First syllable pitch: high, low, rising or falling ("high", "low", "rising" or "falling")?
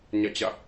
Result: falling